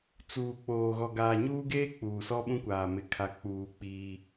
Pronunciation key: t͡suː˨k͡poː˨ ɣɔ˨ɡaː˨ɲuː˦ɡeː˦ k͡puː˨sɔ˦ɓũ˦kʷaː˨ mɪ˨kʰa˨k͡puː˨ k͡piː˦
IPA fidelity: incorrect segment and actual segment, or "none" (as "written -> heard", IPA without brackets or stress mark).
none